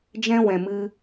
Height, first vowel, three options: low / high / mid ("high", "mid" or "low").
mid